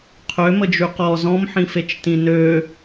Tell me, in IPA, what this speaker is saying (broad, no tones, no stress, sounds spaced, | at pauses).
qʰ ø m ə d͡ʒ y q ɔ z ɔ̃ m ħ ĩ f e t͡ʃ t ĩ n ø